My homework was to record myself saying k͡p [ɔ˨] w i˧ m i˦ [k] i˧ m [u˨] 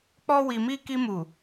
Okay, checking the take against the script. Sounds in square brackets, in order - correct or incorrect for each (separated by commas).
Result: incorrect, correct, correct